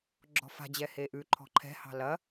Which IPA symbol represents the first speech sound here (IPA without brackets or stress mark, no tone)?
ɡ͡ǁ